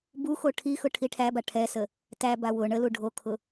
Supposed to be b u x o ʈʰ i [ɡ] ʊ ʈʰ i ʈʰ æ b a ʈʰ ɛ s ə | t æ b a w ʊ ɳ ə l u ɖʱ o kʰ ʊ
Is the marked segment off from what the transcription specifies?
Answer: yes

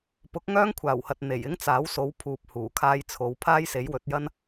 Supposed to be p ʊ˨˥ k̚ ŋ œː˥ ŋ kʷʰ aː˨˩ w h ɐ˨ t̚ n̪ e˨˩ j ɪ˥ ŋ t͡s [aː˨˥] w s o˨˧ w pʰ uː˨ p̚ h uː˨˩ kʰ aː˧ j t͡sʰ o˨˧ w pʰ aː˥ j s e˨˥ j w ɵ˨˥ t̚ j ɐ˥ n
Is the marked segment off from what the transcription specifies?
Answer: no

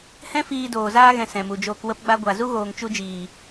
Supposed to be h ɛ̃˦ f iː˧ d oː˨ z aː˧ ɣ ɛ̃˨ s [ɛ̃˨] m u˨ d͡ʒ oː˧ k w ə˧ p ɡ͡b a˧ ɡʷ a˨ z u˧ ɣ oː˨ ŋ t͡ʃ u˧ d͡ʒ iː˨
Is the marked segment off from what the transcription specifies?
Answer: no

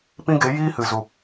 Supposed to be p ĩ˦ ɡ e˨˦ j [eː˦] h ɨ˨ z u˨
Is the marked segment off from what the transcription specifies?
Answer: yes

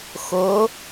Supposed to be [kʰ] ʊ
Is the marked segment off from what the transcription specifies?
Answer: yes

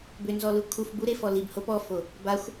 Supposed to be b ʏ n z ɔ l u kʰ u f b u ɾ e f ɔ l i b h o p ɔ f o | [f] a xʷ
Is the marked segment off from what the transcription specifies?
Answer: yes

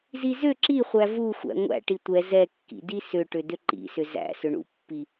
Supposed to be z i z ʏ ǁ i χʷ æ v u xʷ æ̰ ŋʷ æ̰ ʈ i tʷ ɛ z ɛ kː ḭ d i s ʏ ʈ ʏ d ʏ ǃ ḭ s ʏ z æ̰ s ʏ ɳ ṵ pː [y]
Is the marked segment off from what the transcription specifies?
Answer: yes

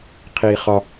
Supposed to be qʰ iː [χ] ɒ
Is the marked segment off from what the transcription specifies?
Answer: no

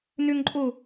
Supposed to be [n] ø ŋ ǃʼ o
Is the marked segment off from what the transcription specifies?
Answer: no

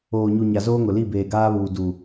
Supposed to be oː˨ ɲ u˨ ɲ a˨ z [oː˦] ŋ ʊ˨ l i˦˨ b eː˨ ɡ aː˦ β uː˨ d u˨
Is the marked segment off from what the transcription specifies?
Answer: no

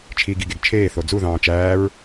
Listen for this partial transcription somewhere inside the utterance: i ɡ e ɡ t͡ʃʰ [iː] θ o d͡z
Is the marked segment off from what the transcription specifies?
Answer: yes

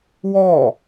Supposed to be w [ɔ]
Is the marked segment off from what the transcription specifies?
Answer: no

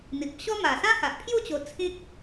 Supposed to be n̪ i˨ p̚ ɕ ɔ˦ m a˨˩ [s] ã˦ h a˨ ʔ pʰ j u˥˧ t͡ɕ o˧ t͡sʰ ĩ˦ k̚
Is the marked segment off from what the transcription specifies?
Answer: no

